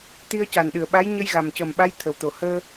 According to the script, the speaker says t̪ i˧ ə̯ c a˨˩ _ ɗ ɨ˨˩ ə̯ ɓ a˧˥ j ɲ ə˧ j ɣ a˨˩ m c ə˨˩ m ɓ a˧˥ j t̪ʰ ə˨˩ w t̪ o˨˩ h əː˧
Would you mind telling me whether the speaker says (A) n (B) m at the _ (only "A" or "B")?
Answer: A